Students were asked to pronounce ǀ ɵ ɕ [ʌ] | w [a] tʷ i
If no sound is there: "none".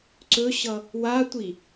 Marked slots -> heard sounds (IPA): ʌ, a

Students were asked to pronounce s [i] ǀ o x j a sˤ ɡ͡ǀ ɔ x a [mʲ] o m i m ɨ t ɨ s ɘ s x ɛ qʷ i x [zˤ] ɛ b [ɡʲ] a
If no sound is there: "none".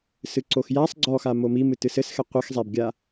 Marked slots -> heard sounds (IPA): ɨ, m, zˤ, ɡʲ

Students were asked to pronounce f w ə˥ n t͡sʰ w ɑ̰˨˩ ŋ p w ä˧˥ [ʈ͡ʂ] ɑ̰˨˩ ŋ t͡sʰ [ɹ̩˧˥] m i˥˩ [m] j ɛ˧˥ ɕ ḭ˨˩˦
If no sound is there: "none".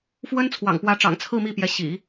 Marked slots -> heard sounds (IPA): ʈ͡ʂ, ɹ̩˥˧, p

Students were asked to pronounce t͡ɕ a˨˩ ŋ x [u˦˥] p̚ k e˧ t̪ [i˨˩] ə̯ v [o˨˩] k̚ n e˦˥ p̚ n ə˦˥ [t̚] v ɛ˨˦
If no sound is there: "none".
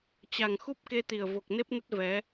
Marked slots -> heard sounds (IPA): u˦˥, i˨˩, o˨˩, t̚

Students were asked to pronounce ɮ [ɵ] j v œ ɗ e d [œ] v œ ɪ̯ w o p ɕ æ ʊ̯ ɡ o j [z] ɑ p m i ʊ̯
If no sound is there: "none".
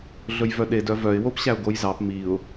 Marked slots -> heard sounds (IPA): ɵ, œ, z

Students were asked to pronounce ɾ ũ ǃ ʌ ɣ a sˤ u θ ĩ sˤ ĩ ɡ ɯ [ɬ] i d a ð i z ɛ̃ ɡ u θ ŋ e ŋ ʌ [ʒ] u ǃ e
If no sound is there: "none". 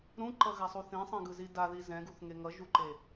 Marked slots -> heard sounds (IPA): z, ʒ

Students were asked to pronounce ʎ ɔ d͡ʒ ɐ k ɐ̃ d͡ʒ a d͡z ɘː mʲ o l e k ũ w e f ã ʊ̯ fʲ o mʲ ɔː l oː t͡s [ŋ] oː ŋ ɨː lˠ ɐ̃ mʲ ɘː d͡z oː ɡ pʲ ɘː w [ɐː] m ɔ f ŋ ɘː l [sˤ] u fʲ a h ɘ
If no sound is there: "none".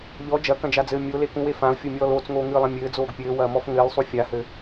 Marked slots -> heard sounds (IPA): ŋ, ɐː, sˤ

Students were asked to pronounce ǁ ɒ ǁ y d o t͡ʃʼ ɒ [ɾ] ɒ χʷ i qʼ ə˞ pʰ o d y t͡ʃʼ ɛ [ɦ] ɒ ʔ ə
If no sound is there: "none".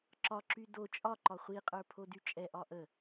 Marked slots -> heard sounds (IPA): ǃ, ʔ

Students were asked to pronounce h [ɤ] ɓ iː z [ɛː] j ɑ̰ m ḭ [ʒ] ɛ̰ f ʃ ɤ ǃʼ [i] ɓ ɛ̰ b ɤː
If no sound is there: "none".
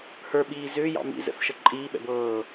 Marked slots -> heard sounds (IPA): ə˞, ʏː, z, iː

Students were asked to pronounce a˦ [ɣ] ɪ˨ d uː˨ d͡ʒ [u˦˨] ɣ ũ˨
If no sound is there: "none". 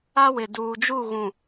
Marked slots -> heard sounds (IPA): w, u˦˨

